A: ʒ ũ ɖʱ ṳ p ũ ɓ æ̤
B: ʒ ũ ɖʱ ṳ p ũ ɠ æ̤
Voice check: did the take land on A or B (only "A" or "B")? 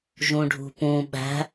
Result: A